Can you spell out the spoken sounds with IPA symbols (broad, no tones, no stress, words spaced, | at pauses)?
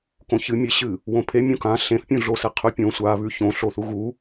kõçɨmʲeɕɨ | wõpʰemʲõ kã ɬẽθpʲũɮose qʰʉpʲõ sʷaβʉ çõɬoθu ɣu